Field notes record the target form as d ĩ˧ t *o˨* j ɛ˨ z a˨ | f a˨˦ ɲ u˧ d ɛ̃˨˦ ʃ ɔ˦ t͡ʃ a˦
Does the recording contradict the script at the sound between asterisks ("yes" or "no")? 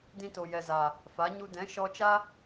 no